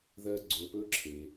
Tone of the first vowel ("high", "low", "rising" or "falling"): low